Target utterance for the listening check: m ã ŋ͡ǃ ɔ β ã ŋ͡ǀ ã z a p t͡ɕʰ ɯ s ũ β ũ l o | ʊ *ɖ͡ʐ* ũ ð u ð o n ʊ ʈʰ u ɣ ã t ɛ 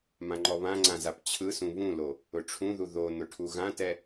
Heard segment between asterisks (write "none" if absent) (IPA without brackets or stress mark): ʈ͡ʂʰ